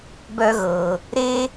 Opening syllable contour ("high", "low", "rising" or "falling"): high